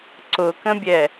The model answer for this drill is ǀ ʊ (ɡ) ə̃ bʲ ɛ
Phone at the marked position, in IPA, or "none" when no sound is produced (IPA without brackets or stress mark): k